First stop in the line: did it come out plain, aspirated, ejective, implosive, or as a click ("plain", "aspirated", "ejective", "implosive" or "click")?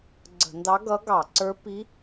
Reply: click